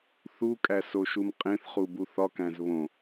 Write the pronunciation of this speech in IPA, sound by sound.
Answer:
θ u kʼ æ s o ʃ u m qʼ ẽ θ χ u b u θ ɒ k æ̃ z β õ

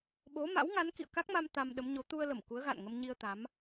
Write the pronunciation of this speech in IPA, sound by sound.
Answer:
ɓ o˨˦ m a̰˧˥ w ŋ a˨˦ n k ḭ˧˨ ə̯ k a˦˥ k̚ m a˧ m t̪ a˧ m ɗ ə˨˦ m ɲ o˨˦ t̪ u˧ ə̯ l ə˧˩ m k u˨˦ ə̯ ɣ a̰˧˨ n ŋ ə˧ m ɲ i˧ ə̯ t̪ a˨˦ m

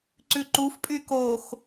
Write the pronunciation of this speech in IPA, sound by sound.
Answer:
ǀ ʉ ǃ u f pʼ y k o x

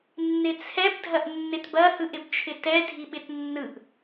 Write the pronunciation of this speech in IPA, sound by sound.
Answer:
nː ɪ t͡sʰ ɛ b dʱ ɐ ʔ nː ɪ t b ɐ h ɯ ʔ ɪ b t͡ʃʰ ɪ t ɛ dʱ i ɓ ɪ t nː ɯ ʔ

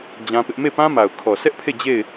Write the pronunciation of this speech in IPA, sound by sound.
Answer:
d͡ʑ ã˦ p ɪ˦ ʔ m e˦˨ p ã˦ m a˨ ʊ̯ kʰ ɔ˨ s ɛ˦ ʔ pʰ e˦˨ d͡ʑ e˦˨ ɪ̯

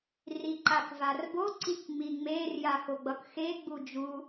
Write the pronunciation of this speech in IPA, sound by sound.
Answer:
r i ǃ a k v a r b o ǀ i k ŋ͡m i ŋ͡m e r j a x o ɡ͡b ʌ k x e ɡ͡b u d͡ʒ u

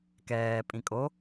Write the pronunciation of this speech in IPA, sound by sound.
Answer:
k ɛː pʼ ĩ kʼ o

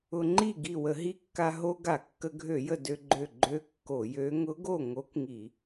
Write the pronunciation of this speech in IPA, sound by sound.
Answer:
ʊ˧ ŋ͡ǃ i˥˩ ɡ i˧˩ w ə˧˩˧ ɦ i˧˥ kː a˧ ɦ o˧ ɡ a˧˩˧ kː ə˧ ɡʱ ø˧˩˧ j ə˧˩ d ø˧ ɡ͡ǃ ø˧˩ ɡ͡ǃ ø˧˥ kː o˧˩˧ j ø˧˥ ŋ ʊ˧˥ ɡ o˥˩ ŋ o˧˥ k ŋ i˧˩˧

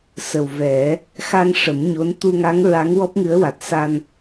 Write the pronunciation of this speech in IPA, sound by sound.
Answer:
s ə˨˩ w v ɛ˨˩˦ | x a˧ ŋ ʂ ə˨˩˦ m ɲ o˧˥ n t̪ u˧ ŋ a˧˥ ŋ ɹ a˧˥ ŋ w ɔ˦˥ p̚ ŋ ɨ˧˥ ə̯ w a˨˩ t̚ s a˧ n

